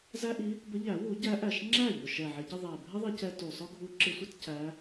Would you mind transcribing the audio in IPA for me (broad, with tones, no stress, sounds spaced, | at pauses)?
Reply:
z æ˥ ʔ i˧˥ | b ə˧˥ ʎ æ˨˩˦ w u˨˩˦ ɟ æ˧˥ ʔ æ˨˩ ʃ ŋ͡ǁ æ˥˩ ʎ ʊ˨˩ ʃ ɛ˨˩ ʕ ɪ˨˩˦ ɟ ɪ˧ ðˤ æ˨˩ bʱ ɪ˥ ðˤ i˧ c ɛ˧ t u˨˩ sˤ ʊ˥ ɡʱ u˧˥ ǁ ɪ˧ sʷ ɪ˥ t c æ˧˥